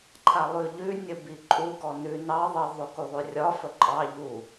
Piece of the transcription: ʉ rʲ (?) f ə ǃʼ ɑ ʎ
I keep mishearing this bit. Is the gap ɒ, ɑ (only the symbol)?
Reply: ɒ